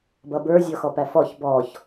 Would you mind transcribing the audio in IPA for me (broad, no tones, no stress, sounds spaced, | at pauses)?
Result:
b ʌ b ə˞ zʲ ɔ x ɔ p æ f ɔ ç b ɔ ç